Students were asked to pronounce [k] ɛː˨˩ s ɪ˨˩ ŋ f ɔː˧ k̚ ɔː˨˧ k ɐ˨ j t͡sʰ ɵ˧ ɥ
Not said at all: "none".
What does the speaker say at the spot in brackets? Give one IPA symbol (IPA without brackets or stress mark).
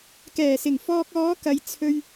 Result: k